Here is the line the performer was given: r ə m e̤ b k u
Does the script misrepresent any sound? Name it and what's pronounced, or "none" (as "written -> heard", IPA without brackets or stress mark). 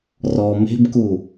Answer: ə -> ɔ